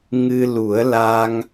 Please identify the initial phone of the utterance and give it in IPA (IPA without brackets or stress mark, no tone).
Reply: ŋ